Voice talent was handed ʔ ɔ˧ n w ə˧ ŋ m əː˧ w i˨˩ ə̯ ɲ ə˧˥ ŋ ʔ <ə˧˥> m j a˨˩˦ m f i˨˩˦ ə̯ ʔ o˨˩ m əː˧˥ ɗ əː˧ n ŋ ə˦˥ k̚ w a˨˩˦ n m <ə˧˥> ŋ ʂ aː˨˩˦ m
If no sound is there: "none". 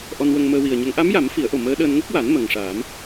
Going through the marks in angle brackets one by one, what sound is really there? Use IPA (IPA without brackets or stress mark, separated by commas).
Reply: a˧˥, ə˨˩